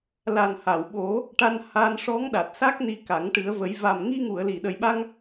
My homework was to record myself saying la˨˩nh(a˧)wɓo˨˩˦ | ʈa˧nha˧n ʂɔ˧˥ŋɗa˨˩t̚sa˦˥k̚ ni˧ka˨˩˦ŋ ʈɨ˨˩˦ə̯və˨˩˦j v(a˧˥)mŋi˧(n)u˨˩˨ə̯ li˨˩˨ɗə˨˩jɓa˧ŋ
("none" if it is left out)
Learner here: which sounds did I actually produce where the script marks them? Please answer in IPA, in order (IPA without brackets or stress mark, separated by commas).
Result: a˨˩˨, a˨˩, ŋ